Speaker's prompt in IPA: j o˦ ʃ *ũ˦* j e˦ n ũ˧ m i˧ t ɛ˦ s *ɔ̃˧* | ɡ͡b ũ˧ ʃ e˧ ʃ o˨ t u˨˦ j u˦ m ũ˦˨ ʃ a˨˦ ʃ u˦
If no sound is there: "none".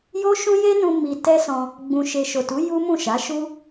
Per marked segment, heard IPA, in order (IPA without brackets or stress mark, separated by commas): ũ˦, ɔ̃˧